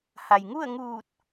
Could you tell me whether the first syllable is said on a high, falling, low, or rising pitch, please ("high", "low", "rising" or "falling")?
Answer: low